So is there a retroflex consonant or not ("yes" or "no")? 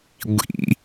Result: no